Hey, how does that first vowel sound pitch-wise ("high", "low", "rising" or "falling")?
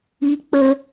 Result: high